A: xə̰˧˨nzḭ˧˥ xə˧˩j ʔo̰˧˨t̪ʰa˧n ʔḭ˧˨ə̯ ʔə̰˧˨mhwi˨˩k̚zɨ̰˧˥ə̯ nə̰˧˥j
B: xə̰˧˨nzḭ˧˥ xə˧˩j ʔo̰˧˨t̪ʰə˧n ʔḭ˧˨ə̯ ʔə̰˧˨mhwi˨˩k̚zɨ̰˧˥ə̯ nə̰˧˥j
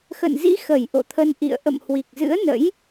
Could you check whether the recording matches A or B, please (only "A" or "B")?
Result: B